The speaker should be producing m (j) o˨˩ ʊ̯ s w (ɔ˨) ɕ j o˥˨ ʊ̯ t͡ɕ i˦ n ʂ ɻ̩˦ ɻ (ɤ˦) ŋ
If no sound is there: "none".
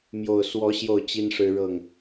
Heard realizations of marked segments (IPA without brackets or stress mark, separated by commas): j, ɔ˨˦, ɤ˥˨